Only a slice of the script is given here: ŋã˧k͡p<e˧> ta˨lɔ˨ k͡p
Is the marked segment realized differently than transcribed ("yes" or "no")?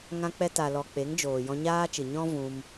yes